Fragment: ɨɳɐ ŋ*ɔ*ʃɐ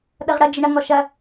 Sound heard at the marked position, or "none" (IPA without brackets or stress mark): ɔ